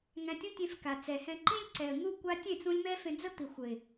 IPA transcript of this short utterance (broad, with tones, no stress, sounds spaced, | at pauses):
ŋ æ̃˧ tʲ ũ˦ tʲ ẽ˧ f k a˨ t͡s ɛ˨ h ɛ̃˧ ǃ ĩ˦ lʲ ǀ ɛ˨ ə̯ ŋ u˦ kʷ a˧ tʲ ẽ˦˨ t͡s ũ˧ lʲ m ɛ˦ f ẽ˧ d͡z ə˦ t̪ i˨ xʷ ə˨ ɪ̯